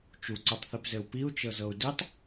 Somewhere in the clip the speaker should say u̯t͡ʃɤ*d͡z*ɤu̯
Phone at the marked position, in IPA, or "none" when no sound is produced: z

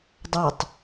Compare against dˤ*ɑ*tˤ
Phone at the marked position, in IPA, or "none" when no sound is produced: a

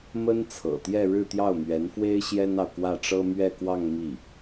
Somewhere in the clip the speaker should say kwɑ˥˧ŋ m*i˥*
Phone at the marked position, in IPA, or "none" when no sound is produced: i˥˩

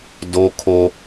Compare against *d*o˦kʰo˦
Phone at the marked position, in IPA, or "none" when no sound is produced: d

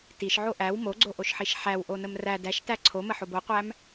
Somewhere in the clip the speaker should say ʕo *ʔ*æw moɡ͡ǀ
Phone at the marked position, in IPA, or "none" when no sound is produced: ʔ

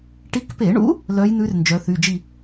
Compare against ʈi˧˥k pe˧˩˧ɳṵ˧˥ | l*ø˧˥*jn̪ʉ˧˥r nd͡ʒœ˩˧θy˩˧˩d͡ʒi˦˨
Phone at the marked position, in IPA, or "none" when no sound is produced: œ˧˥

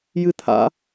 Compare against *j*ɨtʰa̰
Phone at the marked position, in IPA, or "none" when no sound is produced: j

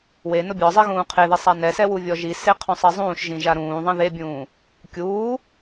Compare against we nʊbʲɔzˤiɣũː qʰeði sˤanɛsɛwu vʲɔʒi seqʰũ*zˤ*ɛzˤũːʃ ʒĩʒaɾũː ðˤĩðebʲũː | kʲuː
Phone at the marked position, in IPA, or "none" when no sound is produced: sˤ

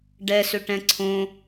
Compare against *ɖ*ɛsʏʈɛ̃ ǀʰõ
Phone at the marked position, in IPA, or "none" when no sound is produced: ɖ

